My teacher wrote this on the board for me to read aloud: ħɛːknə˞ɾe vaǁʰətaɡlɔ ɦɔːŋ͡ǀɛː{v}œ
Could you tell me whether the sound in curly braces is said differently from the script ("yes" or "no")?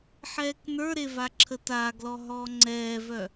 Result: no